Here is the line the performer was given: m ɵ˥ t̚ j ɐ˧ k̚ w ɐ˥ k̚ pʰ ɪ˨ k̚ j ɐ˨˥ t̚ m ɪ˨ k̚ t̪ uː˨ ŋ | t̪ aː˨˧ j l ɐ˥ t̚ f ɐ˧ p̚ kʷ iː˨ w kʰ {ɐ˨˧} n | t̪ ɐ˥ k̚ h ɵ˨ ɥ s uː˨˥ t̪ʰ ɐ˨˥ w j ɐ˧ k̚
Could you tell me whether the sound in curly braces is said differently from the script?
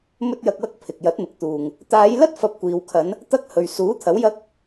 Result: no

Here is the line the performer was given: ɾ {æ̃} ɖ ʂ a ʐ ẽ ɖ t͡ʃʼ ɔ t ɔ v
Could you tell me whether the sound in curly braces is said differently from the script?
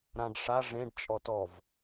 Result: yes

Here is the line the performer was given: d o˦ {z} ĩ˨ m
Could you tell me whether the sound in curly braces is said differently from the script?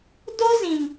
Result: no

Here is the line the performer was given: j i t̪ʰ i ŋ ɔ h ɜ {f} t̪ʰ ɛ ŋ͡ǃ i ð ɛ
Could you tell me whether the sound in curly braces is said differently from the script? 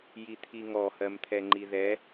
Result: yes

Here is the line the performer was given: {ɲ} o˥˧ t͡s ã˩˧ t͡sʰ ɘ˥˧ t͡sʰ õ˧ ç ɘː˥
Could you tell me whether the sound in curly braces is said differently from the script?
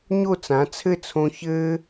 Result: no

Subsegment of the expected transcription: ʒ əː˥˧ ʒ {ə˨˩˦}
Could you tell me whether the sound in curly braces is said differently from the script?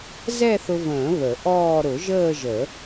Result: no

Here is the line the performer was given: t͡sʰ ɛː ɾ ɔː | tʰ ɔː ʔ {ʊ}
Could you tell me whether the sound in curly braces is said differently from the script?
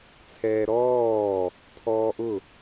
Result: no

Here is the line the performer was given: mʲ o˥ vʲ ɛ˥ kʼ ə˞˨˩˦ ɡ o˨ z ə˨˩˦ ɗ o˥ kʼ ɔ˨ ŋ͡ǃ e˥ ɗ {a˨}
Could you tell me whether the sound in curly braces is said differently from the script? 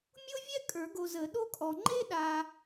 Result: no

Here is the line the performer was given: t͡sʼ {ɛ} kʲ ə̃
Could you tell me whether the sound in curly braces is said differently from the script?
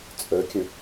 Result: yes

